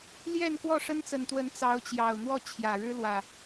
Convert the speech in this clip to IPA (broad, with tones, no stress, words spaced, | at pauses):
ljɛ˥˨n kwɔ˥˨ʂə˦nt͡sə˨˩nt̪wə˨˦n t͡sɑ˨˦ʊ̯t͡ɕjɑ˨˩ʊ̯n̪wɔ˥˨ t͡ɕʰjä˨˩ɻɻ̩˦lwä˨˩